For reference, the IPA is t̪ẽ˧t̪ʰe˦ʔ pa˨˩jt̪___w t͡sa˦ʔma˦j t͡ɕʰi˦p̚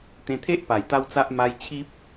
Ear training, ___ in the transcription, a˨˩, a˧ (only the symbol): a˧